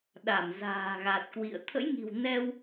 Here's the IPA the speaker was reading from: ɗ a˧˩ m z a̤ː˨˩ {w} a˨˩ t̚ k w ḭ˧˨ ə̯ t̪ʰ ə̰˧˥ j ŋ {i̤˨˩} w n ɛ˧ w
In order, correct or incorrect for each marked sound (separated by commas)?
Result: incorrect, correct